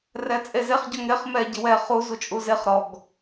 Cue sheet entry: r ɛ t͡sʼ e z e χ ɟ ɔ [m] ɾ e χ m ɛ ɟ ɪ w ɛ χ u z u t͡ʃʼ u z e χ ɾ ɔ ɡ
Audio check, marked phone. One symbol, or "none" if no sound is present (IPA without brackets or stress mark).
ŋ